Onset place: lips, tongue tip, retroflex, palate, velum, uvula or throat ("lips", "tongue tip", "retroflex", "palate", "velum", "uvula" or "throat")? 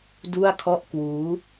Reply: tongue tip